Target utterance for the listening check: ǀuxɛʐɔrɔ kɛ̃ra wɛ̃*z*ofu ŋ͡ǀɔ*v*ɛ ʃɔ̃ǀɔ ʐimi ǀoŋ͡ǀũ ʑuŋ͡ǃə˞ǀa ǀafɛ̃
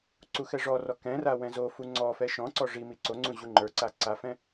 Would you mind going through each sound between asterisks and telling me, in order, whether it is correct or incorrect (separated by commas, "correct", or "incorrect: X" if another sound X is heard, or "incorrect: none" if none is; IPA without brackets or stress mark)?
correct, incorrect: f